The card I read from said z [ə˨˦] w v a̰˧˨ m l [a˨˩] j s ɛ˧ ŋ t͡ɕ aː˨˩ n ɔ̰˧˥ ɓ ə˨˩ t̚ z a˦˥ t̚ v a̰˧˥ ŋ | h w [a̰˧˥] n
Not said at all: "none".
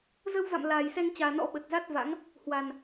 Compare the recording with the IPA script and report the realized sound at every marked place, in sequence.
ə˧, aː˨˩, a˨˩

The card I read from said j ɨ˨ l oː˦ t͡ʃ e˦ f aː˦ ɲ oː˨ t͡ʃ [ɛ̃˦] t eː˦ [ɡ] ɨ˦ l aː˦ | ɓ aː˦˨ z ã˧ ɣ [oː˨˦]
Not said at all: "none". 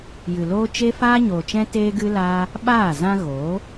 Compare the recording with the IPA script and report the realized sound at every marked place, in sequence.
ɛ̃˦, ɡ, oː˨˦

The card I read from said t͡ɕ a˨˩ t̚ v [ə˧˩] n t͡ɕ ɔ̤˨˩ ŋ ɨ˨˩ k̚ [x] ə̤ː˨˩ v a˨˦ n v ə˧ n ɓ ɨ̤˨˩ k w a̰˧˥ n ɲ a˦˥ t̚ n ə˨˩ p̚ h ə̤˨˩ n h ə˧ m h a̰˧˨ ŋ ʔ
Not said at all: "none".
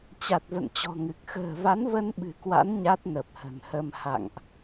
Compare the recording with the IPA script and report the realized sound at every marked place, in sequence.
ə̰˧˨, x

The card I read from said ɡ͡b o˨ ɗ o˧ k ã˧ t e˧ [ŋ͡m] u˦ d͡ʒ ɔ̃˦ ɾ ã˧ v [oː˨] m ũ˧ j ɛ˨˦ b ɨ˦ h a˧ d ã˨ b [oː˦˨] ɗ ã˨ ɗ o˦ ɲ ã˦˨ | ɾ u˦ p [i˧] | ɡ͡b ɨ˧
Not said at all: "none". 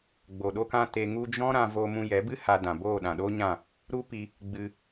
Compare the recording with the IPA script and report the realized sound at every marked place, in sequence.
ŋ, oː˧, oː˦˨, i˧

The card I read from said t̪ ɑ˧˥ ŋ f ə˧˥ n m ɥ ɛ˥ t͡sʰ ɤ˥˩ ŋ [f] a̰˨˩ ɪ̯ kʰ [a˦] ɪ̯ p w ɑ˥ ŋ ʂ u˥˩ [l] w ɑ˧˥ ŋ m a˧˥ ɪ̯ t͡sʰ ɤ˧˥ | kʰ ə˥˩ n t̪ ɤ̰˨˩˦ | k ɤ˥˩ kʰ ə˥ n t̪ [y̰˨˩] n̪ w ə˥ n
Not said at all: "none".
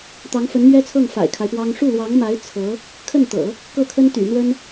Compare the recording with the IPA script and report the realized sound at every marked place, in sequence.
f, a˦, l, y̰˨˩

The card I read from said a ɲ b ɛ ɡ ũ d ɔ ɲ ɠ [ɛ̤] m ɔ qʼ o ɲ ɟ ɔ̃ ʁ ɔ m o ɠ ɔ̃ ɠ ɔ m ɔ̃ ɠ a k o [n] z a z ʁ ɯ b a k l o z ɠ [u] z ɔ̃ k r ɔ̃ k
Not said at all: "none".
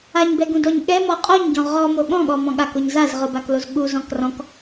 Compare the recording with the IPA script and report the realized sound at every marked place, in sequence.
ɛ, ɲ, u

